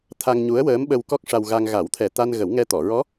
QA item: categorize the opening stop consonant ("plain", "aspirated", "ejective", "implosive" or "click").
aspirated